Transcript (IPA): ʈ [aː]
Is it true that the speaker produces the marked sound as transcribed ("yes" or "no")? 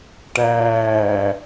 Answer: no